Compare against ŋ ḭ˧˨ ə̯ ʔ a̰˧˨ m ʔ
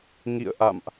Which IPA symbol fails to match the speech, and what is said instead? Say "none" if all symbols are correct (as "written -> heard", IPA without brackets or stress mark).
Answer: none